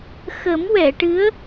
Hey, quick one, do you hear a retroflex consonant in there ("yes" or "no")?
yes